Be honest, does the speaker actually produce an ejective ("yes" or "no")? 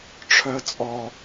yes